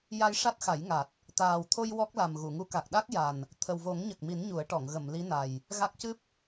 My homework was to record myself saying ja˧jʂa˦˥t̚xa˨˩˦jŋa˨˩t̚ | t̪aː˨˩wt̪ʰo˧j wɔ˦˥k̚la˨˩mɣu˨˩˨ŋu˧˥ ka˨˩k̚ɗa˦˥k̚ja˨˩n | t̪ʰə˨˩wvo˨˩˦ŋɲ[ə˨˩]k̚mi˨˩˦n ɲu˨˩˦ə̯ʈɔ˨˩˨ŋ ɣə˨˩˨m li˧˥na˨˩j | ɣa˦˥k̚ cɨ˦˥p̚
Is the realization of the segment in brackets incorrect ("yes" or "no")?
no